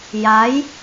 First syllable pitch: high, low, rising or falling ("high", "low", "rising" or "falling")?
rising